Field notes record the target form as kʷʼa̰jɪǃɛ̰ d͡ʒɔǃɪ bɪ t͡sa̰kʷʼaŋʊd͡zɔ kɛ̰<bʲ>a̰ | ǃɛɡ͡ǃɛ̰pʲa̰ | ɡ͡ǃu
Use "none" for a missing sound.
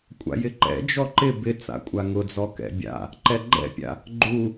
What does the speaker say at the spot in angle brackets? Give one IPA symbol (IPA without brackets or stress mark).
bʲ